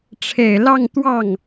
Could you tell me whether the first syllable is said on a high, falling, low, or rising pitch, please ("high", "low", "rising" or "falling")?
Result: low